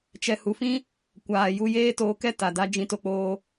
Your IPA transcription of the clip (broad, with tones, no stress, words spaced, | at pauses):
t͡ʃɛ˨hu˨fĩ˧ | kʷaː˨ ju˧jeː˦toː˧kɛ˦ ta˨da˦ d͡ʒĩ˧to˧k͡poː˧